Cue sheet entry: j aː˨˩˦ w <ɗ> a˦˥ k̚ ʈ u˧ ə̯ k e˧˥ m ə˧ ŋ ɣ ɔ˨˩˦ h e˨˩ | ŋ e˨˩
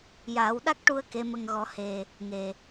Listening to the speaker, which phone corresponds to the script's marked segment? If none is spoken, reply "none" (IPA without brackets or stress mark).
ɗ